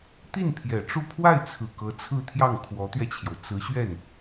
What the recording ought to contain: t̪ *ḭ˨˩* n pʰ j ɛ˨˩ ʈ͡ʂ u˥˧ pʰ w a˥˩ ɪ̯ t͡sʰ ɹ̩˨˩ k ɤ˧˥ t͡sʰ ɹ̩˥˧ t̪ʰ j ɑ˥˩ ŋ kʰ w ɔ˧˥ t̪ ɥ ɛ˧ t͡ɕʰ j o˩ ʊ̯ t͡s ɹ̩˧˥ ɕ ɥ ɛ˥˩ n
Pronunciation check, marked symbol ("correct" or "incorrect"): incorrect